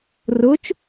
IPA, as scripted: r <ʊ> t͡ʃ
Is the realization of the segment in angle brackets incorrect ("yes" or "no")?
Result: no